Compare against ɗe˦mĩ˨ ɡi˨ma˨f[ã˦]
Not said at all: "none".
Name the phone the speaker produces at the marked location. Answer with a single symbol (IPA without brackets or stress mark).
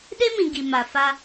a˦